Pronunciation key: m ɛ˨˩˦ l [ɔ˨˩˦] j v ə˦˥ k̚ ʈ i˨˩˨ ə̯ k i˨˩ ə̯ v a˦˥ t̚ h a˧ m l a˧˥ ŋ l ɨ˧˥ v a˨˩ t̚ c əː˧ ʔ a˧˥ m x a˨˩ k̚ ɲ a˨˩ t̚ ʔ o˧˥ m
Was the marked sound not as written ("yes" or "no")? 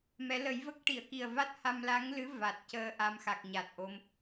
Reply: yes